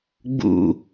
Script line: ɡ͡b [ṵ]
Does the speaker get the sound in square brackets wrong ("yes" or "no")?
no